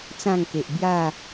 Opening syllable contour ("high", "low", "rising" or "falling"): falling